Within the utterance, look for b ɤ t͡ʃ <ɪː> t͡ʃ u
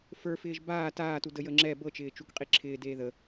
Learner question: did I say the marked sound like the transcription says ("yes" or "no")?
yes